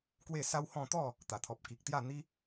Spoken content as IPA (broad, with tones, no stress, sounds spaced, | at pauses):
k w e˥˧ s a˦ w h ɔ̃˥˧ t̪ ɔ˥˧ | t̪ a˨˩ t̪ʰ ɔ˨ p̚ k i˨ k̚ t̪ j a˥˧ n̪ i˦